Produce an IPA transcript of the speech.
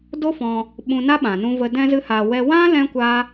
d o˦ f ɔ̃˧ | ɓ ũ˧ n a˦ ɓ ã˨ n ũ˧ v ə˧ d ɛ̃˦ z ɨ˦ h aː˧ w ɛ˦ w ã˦ l ɛ̃˦ kʷ a˦

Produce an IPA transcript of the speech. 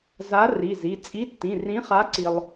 z a˨˥ r i˩˧˩ z i˩˧˩ t͡sʼ i˨˥ tː ĩ˩˧˩ r ĩ˨˥ χ a˨˥ ǀ i˧ lˠ

